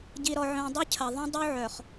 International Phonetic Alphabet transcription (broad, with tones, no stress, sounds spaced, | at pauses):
ɟ i˨ ɾ ɔ˨ ʕ œ̃˨ dˤ y˦ cʰ ɐ˨ ðˤ œ̃˦ dˤ u˦ ʕ œ˨ χ